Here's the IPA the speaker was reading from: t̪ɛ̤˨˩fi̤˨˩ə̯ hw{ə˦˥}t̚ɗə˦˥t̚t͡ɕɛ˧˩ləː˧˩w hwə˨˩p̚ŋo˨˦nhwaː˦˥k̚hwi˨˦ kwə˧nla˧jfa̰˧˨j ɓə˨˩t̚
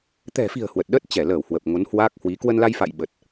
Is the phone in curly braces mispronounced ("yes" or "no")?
yes